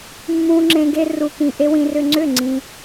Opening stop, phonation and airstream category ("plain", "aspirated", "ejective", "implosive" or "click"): click